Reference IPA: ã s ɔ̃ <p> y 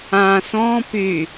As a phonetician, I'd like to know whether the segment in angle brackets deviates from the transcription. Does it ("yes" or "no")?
no